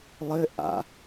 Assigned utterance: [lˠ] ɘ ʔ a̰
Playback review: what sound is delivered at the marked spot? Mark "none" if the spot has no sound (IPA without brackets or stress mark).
lˠ